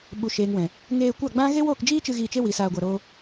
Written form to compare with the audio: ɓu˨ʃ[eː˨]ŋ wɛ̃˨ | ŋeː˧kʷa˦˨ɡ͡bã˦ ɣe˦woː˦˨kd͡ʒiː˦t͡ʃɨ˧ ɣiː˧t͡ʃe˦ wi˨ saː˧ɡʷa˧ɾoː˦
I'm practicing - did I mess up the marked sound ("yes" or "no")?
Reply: no